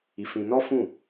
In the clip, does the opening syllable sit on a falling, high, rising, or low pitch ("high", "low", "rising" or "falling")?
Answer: low